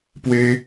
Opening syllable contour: high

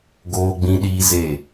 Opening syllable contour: high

